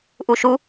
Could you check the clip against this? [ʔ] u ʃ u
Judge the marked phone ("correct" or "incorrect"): correct